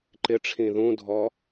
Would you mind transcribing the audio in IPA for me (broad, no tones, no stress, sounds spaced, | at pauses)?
ǃ ɪ ʈ͡ʂʰ ĩ ð ũ dʱ ɔ